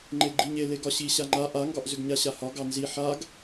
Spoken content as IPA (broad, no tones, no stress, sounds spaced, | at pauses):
ŋ͡ǃ e ɡ͡ǃ i ɲ e l e ɡ ɒ ɕ i ɕ a ŋ͡ǃ a ʔ a ŋ ɡ ɒ ʔ z ʏ ɡ ɲ a ɕ a h ɒ ɡ ɑ n z i ħ a ɡ